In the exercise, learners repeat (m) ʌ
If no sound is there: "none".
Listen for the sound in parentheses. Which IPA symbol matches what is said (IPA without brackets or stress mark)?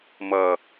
m